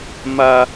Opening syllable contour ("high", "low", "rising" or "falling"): high